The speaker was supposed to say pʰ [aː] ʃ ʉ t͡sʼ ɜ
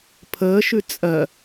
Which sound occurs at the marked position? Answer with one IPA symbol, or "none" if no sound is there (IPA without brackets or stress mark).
əː